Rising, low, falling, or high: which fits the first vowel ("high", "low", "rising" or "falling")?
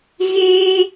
high